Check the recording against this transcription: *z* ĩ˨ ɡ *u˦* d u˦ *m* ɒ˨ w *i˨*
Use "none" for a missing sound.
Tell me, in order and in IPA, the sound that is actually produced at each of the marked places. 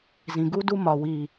z, u˦, m, i˨

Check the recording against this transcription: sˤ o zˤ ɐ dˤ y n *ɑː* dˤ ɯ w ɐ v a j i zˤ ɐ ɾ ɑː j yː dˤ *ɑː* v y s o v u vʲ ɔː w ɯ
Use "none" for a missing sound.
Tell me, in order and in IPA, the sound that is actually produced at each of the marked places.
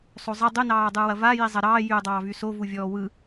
ɑː, ɑː

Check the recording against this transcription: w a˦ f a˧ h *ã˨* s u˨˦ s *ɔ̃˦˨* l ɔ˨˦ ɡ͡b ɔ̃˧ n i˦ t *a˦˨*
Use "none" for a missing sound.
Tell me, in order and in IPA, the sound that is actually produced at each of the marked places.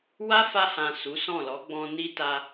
ã˨, ɔ̃˦˨, a˧

